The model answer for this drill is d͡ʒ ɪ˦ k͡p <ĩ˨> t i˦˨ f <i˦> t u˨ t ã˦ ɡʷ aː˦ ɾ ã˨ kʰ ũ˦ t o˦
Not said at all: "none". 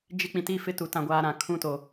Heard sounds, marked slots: ĩ˨, ɪ˦

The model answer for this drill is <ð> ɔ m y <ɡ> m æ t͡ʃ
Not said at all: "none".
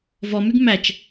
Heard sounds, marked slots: v, ɡ

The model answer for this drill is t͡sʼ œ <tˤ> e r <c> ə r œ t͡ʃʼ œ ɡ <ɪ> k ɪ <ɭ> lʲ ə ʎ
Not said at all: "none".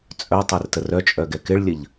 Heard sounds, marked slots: tˤ, t, ɛ, ɭ

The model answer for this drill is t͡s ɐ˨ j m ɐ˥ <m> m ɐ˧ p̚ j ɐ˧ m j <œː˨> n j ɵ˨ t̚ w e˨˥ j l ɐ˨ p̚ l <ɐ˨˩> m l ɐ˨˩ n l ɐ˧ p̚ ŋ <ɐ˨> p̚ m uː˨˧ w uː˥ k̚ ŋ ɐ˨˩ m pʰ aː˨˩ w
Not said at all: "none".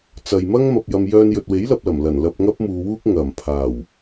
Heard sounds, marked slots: ŋ, œː˧, ɐ˨˩, ɐ˥

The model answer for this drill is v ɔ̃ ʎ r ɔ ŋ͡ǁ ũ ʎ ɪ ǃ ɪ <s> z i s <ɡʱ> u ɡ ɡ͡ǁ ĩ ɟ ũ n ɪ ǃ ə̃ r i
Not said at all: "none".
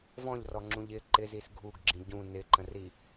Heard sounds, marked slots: none, ɡʱ

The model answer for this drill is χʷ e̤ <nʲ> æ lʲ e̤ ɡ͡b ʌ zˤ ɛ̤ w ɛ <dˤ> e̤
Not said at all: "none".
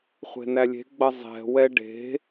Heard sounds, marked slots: n, ɖ

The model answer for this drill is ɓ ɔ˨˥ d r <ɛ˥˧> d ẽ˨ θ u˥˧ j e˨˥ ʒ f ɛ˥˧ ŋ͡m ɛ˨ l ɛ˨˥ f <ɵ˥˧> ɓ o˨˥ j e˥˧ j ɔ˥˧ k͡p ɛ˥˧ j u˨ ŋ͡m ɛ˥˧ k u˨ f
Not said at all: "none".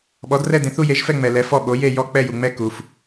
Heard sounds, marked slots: ɛ˥˧, ɔ˥˧

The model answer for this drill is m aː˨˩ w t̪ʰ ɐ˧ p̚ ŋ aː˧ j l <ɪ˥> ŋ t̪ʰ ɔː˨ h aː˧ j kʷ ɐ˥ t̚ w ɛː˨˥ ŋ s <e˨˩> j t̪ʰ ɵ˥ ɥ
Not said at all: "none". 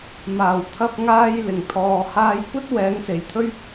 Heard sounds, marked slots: ɪ˨˩, e˨˩

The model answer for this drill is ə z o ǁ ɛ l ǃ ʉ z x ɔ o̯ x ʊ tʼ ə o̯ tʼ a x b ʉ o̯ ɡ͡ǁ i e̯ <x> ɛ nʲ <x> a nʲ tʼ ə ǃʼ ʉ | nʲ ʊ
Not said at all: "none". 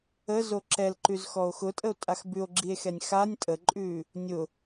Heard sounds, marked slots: x, x

